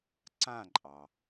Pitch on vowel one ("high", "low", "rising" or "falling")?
falling